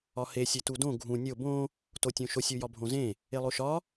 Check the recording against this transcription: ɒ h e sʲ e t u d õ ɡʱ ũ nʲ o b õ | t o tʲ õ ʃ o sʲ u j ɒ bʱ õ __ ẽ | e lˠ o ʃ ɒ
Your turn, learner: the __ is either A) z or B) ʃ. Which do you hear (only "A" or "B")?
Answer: A